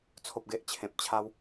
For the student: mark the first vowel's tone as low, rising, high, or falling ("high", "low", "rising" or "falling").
low